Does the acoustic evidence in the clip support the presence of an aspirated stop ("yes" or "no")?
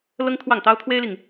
yes